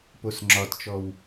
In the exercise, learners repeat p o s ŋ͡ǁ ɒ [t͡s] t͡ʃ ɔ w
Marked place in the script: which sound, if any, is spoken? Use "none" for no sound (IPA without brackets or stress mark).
t